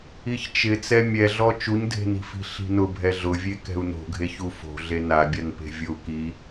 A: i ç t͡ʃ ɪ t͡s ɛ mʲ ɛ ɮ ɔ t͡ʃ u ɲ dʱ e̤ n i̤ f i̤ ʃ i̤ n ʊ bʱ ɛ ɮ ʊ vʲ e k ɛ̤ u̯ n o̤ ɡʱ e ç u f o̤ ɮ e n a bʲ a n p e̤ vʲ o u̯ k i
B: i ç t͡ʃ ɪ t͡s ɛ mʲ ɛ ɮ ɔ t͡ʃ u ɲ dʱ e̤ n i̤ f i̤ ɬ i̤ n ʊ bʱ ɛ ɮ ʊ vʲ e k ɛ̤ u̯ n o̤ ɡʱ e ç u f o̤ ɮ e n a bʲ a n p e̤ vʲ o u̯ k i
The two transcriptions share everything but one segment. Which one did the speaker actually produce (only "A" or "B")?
B